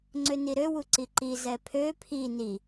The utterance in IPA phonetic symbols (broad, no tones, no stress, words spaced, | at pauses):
ŋ͡ǀøniɾø wuǀiǃi zɛpʰø pʰi ni